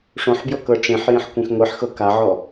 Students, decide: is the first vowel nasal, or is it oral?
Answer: nasal